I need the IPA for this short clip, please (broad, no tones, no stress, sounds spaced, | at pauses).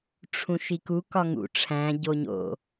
ʈ͡ʂʰ ũ ʃ i k u k ɒ ŋ ṵ ʈ͡ʂʰ æ̃ ɟ o ɲ o̰